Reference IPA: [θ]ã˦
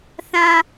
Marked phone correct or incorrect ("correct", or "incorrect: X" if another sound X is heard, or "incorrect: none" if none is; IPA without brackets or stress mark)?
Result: correct